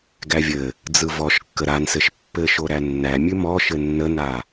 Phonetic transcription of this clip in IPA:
ɡ æ vʲ ɘ | d͡z ɯ v ɔ ʃ kː ə ɾ a n s ɘ ʃ pː ɘ ʃ o ɾ æ nː æ mʲ ʉ m ɔ ʃ ɘ nː ə n a

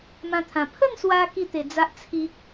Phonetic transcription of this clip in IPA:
m ã˧ t̪ʰ ã˨˩ pʰ ə˥˧ n s w a˧ k i˥˧ t̪ e˧ d͡z a˦ ʔ t͡sʰ i˦ k̚

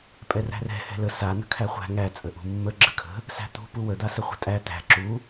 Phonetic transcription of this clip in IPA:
pʼ ɛ r æ̤ r ɛ̤ h ɛ̤ l ə s a n ə̤ kʰ æ χʷ æ̤ ŋ æ t͡sʼ ə ʔ ṳ mː ə ɡ͡ǁ ə kʰ ə̤ | s æ̤ t̪ ṳ p u w ə d̪ a s ə χʷ ə̤ tʼ æ t̪ æ̤ ǁ u

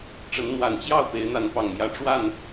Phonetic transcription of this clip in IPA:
ʈ͡ʂ ə˨˦ n n̪ w a˨˩ n t͡ɕ j ɑ˥˨ ʊ̯ p e˨˦ ɪ̯ n̪ a˨˦ n p ɑ˨˩ ŋ m j ä˨˦ ʈ͡ʂ w a˥˨ n

